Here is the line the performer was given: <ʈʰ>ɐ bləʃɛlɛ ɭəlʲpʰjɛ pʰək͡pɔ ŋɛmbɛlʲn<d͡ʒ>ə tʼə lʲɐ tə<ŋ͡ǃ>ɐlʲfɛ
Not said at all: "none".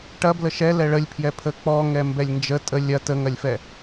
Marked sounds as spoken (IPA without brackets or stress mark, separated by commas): ʈ, d͡ʒ, ŋ